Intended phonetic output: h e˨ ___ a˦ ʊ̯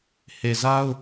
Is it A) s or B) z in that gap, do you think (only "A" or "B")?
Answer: B